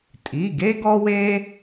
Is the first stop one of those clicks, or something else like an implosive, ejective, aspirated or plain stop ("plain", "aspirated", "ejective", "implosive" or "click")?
ejective